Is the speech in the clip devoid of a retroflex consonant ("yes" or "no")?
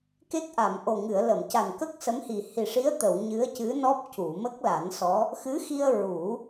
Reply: no